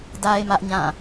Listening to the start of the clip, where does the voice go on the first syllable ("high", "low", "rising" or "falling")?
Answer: high